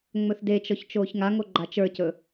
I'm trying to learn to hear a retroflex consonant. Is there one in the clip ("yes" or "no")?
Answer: no